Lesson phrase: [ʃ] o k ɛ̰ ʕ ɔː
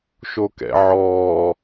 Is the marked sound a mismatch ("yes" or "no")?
no